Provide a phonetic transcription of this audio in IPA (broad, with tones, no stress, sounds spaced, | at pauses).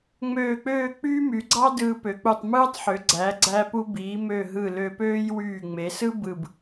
ŋ͡m øː˥˧ k͡p øː˥˧ k͡p yː˥ m y˩˧ ɡ͡ǀ ɑ˥ d ɯː˧ p ø˩˧ k͡p u˧˩ tˤ m ɯː˥ tˤ ħ ø˩˧ ɡ͡ǀ æ˩˧ ɡ͡ǀ æ˥ p u˥ b iː˩˧ m ø˧˩ ɦ ɯ˧˩ l ø˧ p øː˥ j w yː˧˩ ŋ͡m e˩˧ s ɯ˥ b ɯ˧˩ b